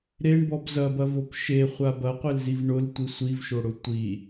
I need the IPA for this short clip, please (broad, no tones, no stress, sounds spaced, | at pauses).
ɾ e ɳ b ɔ b z ɐ b ɐ v o p ʃ e χʷ a b ɐ qʷ e l z i v ɳ ʊ l tʷ i sʷ i v ʃ o ɽ ʊ tʷ i